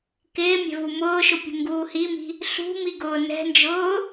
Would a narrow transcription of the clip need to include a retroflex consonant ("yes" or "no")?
no